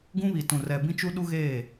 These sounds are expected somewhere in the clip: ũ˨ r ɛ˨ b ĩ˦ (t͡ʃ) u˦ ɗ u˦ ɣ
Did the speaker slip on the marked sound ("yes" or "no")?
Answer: no